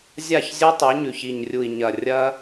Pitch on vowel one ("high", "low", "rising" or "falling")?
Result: falling